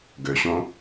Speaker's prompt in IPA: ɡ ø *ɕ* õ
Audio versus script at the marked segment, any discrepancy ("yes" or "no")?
no